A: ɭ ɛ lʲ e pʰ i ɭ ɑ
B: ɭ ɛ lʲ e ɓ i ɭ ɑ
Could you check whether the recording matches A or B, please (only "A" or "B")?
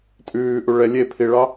A